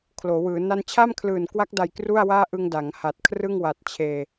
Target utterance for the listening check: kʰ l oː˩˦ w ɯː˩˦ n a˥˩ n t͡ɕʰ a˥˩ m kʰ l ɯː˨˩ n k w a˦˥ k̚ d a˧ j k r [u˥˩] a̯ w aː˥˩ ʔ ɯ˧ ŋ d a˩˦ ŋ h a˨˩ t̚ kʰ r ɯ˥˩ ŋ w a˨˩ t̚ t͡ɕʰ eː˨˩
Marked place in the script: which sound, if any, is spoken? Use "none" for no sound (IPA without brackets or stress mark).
u˥˩